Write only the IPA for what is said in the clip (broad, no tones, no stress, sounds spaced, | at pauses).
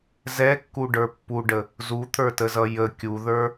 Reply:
z ɛ kː u ɖ ə˞ pː u ɖ ə | z u t̪ʰ ə˞ t ə z ʌ j ə kʲ u ð ə˞